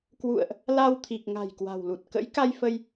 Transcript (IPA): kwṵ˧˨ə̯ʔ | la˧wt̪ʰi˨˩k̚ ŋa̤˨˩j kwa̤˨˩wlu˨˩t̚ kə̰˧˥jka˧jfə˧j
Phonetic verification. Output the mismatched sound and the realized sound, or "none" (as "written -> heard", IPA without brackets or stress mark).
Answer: none